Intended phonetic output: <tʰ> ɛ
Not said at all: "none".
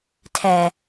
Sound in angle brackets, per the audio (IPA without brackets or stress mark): tʰ